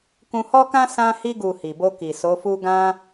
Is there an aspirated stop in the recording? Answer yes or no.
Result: no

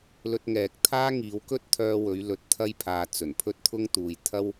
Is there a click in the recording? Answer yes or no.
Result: no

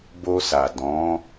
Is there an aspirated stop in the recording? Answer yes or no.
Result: no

